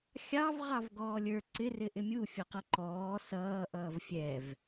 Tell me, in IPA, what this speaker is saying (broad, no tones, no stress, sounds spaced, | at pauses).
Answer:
xʲ ɑ v ʁ ɑ v ɡ ɔː lʲ ə˞ ǀ ɪ r ɪ ʔ ɪ mʲ u fʲ ʌ q ʌ ǃ ɔː s ʌː ʔ ʌː v fʲ ɛ v